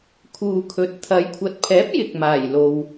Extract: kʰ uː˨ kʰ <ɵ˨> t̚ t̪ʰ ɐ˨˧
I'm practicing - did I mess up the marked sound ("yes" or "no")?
no